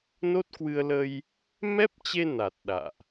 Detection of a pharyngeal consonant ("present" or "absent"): absent